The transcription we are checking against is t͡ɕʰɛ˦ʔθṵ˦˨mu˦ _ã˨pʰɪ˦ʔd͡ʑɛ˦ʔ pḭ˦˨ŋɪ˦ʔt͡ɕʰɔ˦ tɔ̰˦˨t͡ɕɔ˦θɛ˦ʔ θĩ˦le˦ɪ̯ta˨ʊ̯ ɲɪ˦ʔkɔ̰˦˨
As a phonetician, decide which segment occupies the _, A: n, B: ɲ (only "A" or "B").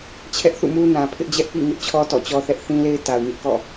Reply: A